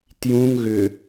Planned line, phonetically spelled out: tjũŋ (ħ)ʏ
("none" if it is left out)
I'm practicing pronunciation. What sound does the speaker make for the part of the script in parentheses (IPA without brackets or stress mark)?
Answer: ɣ